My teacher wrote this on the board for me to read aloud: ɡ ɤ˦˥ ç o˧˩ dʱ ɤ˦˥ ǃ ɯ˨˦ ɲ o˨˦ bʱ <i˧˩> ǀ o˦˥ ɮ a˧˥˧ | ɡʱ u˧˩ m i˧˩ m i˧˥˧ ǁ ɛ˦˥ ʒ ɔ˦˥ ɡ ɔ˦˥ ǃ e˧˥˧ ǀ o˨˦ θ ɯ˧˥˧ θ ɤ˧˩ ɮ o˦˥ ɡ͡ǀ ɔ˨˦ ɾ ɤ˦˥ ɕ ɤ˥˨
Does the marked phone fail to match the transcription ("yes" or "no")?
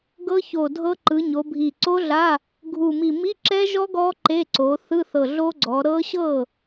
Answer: no